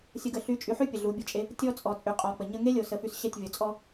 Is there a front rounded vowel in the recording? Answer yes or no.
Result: yes